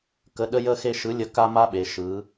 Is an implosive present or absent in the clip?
present